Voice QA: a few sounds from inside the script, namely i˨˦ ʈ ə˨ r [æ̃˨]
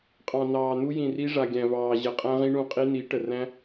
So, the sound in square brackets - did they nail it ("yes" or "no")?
no